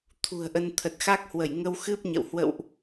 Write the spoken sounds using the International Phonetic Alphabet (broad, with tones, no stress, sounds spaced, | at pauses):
t̪ʰ ṳ˨˩ ə̯ ʔ ə˧ n t̪ʰ ə˨˩ t̚ x a˦˥ k̚ h w ə˧˩ j ŋ ə˧ w x ɨ˦˥ p̚ ɲ ə̰˧˨ w h w ə̰˧˨ w ʔ